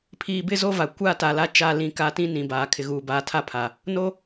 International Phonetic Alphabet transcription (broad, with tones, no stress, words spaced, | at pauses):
pʰiː˨bɪ˦ zo˦va˨ kʷa˦˨ta˨ la˦t͡ʃa˦˨ lĩ˦˨ka˦ tĩ˦ nĩ˨baː˨ kʰɪ˨ɣuː˨baː˨˦ tʰa˦pʰa˨ | no˦